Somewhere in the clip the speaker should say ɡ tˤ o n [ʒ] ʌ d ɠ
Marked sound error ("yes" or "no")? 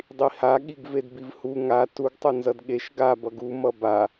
yes